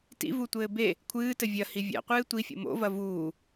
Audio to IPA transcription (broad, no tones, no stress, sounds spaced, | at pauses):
t ḭ v u tʷ ɘː b e | kʷʰ ɨː t ɘ vʲ ɐ h i vʲ a̰ qʷ ɨː tʷ i fʲ o̰ m o̰ v ɐ v uː